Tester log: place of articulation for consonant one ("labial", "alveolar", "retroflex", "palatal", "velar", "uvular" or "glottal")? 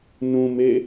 alveolar